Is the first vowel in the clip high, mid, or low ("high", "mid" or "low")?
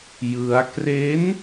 high